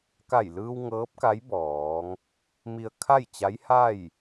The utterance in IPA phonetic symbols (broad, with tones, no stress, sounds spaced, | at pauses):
k a˧˩ j l ɯː˧ w ŋ ɤː˧˥ p̚ k a˧˥ j b ɔː˩˧ ŋ | m i˧ ə̯ kʰ a˥˨ j t͡ɕ a˧˥ j h a˥˨ j